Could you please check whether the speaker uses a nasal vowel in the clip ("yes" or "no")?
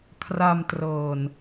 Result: no